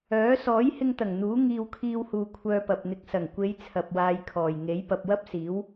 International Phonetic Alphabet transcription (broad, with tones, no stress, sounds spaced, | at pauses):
œː˨˥ s ɔː˨˥ j h ɪ˧ ŋ t̪ ɐ˨˩ ŋ n̪ uː˨˥ ŋ iː˧ w kʰ iː˧ w h uː˨ kʷʰ œː˧ p ɐ˨ p̚ n̪ ɪ˨ k̚ s ɐ˨˩ ŋ kʷ e˨˧ j t͡sʰ ɐ˨ p̚ w aː˨˧ j kʰ ɔː˨˩ j ŋ e˨˥ j p ɐ˨ p̚ w ɐ˥ p̚ s iː˨˥ w